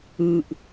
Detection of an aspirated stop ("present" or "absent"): absent